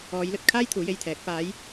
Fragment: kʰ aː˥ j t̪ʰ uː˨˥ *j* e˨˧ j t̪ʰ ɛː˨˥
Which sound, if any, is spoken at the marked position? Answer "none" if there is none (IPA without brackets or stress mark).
j